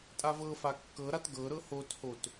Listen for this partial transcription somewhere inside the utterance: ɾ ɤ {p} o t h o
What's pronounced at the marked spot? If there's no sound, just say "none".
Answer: h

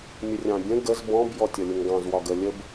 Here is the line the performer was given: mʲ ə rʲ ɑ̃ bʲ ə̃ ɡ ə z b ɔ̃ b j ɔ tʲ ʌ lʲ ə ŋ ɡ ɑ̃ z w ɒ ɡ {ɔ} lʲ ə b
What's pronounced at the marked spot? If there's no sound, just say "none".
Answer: ə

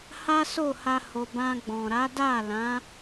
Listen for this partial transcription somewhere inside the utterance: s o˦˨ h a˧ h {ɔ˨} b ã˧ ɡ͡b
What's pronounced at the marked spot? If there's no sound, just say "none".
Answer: o˨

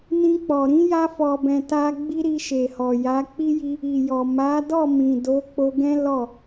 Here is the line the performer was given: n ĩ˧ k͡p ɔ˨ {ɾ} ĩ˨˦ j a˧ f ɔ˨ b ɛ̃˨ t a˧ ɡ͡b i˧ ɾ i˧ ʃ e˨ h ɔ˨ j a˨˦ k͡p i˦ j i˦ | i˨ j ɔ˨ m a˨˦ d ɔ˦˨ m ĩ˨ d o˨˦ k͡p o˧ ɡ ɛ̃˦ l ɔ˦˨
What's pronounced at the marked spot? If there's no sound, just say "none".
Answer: ɾ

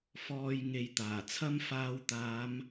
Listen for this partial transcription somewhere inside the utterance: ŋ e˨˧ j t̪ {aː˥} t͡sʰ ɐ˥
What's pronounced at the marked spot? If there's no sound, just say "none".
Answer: aː˨˩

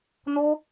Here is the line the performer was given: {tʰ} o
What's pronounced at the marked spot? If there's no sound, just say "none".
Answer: n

